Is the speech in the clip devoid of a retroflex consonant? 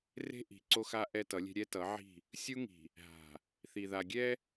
yes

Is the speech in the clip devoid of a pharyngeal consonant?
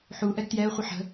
no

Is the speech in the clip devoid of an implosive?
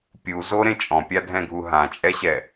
yes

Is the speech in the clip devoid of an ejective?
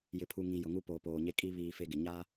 no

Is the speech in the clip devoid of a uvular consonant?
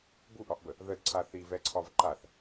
yes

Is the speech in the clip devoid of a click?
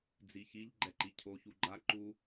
no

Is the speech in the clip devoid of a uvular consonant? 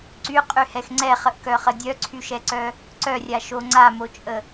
no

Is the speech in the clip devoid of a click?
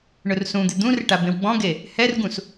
yes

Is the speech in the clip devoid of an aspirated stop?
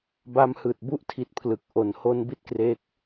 no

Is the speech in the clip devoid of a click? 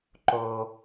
no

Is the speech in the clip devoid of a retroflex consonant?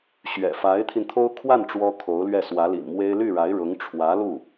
no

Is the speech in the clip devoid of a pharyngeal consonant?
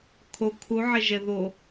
no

